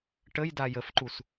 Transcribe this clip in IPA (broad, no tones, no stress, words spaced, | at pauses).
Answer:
ʈəj dajəfǃus